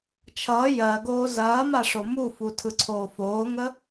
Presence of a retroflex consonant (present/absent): present